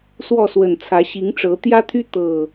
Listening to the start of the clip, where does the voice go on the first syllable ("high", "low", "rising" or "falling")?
falling